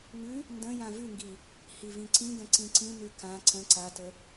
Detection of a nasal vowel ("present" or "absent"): present